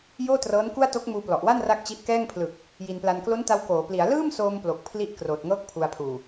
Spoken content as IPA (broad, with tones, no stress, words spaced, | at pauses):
joː˥˩trɤː˦˥nku˥˩a̯ to˦˥k̚muː˧plɔ˨˩ʔwa˥˩n ra˥˩k̚t͡ɕi˦˥ʔ kɛː˥˩ŋpʰlɯ˨˩k̚ | ji˧npla˧n klo˦˥nta˧w koː˩˦pli˩˦a̯ lɯː˥˩msoː˧mplo˨˩k̚ pʰli˥˩ʔ kroː˨˩t̚ŋɤː˦˥k̚ pʰu˧a̯pʰuː˨˩